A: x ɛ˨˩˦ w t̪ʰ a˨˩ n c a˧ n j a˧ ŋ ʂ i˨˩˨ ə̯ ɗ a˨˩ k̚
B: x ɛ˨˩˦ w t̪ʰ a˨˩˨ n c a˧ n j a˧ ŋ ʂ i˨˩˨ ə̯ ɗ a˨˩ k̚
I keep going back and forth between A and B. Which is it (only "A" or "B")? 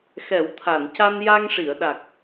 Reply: B